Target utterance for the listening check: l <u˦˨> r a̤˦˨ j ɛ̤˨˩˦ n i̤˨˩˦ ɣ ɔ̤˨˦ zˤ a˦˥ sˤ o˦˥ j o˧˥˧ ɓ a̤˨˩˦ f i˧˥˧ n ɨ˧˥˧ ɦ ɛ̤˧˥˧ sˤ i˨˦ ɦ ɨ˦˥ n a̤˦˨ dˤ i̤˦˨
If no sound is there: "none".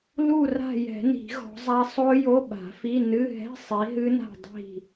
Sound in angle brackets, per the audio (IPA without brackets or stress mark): u˦˨